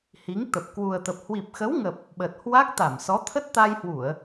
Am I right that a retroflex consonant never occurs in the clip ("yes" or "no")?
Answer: yes